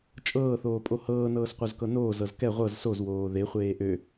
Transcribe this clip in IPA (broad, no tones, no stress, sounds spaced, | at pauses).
t͡ʃʼ ɤː θ oː pʼ o h ɤː n ɤː s qʷ œ z k ɤ n oː z ɤ z k ɛ ʁʷ ɤ z s o z w oː ð e χʷ eː ʔ ø